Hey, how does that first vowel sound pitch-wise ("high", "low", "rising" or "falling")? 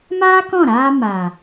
high